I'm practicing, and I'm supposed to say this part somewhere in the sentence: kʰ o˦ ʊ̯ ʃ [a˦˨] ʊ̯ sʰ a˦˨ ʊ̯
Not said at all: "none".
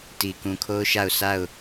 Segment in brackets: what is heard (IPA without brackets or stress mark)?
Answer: a˦˨